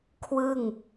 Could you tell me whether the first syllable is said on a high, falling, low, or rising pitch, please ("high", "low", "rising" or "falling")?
falling